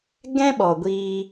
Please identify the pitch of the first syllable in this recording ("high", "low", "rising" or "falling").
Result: high